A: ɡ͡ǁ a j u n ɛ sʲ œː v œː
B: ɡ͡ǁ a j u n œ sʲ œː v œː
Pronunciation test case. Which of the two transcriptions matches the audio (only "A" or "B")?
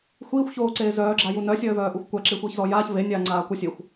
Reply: B